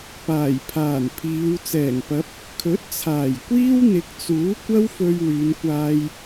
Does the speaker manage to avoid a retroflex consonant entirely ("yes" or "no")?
yes